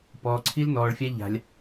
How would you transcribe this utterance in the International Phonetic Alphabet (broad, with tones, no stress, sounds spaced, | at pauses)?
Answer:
p ɔː˧ ǀʰ i˦ l n ɔː˧ ɭ fʲ a˦ ʎ a̤˧ lʲ